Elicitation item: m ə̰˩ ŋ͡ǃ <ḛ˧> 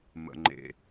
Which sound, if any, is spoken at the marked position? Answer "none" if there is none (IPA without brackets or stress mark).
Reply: ḛ˩